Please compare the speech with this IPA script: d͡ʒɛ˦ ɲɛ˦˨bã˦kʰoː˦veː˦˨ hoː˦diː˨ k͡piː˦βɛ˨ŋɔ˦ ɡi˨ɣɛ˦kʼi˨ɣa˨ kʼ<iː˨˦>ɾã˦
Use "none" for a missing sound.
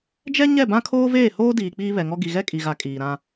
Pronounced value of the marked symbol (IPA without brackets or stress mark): iː˨